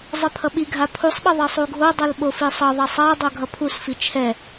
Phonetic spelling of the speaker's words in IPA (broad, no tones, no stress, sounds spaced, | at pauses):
zˤ i pʰ ʌ ɓ i ɡʱ a pʰ u sˤ ɓ ʌ ðˤ ɛ sˤ u ɡʱ o dˤ ʌ l ɓ o f i sˤ ʌ ðˤ a sˤ a dˤ o ɡʱ ʌ pʰ u s f i t͡ʃʰ ɛ